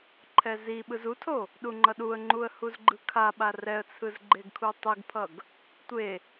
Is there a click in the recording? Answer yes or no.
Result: yes